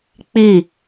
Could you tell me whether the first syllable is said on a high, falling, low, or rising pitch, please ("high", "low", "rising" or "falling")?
falling